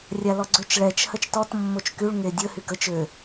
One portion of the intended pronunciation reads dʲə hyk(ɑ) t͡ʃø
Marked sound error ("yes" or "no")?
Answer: yes